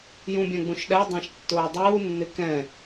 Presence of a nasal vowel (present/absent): present